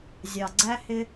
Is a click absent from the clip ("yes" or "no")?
no